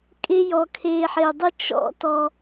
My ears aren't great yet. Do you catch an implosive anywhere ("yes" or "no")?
no